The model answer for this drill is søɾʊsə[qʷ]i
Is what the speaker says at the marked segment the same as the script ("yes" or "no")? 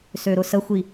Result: no